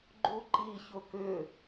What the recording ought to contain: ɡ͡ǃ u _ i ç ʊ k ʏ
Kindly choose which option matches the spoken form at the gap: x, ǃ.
ǃ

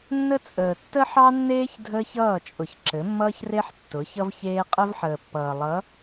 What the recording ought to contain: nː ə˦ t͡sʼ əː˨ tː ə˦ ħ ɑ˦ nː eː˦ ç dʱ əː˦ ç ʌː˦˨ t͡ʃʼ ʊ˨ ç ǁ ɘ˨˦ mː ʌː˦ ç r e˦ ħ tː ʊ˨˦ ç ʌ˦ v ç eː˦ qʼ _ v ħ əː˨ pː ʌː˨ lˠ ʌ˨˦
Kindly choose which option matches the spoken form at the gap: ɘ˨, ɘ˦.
ɘ˦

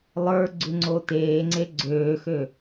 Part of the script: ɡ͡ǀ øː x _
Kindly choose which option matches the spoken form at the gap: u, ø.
ø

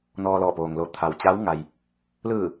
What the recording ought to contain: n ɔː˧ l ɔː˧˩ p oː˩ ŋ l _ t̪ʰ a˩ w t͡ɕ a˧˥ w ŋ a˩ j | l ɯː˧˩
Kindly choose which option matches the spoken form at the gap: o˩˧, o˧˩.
o˧˩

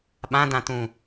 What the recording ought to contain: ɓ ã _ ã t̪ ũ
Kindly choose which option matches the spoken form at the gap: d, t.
d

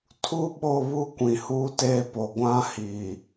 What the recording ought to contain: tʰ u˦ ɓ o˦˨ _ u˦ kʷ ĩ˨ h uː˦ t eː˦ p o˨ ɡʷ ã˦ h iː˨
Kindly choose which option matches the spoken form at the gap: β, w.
β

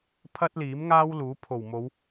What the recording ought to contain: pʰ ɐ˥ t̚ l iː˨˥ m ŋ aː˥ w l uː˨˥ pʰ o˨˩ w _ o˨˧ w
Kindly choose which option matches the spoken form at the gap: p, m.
m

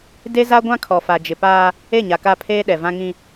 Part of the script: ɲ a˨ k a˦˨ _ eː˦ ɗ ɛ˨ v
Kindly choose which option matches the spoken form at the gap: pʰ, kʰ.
pʰ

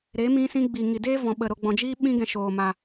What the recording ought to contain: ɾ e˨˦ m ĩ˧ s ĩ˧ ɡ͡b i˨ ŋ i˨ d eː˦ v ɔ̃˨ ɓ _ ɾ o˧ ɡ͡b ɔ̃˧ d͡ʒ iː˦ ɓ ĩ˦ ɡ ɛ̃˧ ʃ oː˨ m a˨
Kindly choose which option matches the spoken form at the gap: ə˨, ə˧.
ə˨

